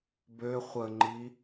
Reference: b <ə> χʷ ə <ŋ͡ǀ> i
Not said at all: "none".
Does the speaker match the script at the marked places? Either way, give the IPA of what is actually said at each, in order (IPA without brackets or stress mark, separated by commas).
ø, ŋ͡ǃ